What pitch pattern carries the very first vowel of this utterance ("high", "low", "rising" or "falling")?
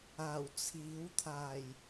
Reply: low